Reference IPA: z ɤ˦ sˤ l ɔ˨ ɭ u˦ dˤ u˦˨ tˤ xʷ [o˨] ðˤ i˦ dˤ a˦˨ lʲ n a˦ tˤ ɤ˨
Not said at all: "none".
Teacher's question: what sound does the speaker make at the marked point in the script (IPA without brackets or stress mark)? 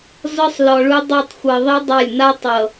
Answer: ɤ˨